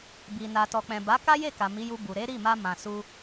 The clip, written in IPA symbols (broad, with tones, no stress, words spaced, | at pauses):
bi˨ na˨tɔ˨k͡pɛ̃˨ ba˨˦ka˦je˦˨ka˨ mi˨˦ju˧ bu˨ ɾe˨˦ɾi˦˨ma˧ mã˨su˧